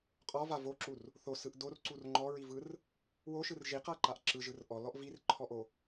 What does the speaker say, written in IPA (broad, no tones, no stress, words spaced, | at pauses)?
qʼɔva voǁur | θosɯʔ dorǀur ŋ͡ǃɔɹivɯr | woʃɯr ʒiqaǃaʔ ǁɯʒɯr ʔɔlɔʔ virǃʰɔʔo